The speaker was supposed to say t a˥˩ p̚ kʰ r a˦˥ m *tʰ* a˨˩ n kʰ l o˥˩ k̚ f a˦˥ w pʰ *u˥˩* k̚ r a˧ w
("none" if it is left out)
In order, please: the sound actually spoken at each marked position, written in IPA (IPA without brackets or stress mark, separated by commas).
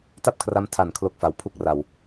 tʰ, u˥˩